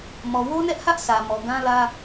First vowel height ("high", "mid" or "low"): mid